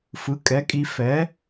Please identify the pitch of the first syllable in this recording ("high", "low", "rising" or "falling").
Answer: rising